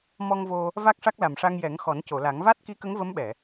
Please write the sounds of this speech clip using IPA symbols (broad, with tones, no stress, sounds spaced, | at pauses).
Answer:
m ɔ˧ ŋ v o˧ | v a˦˥ k̚ ʂ a˦˥ k̚ l a˨˩ m ʂ a˧ ŋ j ɛ˨˩˦ ŋ x ɔ˨˩˦ n c o˨˩˨ l a˨˩˦ ŋ v a˦˥ t̚ k i˧˥ k ə˧˥ ŋ v ə˧˥ m ɓ ɛ˨˩˨